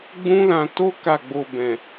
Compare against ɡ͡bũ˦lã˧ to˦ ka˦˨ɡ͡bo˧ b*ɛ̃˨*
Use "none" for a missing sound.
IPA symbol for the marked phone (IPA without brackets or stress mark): ɛ̃˨